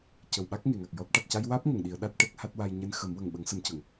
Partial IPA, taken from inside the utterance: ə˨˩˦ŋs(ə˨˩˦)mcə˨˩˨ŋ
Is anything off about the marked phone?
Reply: no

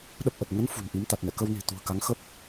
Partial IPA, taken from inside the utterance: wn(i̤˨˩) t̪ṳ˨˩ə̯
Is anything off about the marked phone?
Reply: no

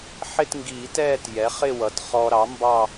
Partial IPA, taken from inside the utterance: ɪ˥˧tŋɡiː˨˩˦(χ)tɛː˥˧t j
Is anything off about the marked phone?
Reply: yes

